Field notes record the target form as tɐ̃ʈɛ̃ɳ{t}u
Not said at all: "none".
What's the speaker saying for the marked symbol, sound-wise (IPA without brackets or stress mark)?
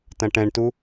t